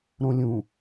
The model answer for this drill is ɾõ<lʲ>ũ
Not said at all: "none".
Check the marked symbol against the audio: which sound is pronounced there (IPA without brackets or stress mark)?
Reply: lʲ